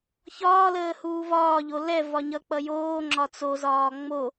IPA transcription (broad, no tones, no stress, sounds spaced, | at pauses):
ç ɒː l əː h uː v ɒː ʎ o l ɛ v ɒ ɲ ʌ k͡p ʌ j oː ŋ͡ǁ ɒ t͡s o z ɒː ŋ͡m o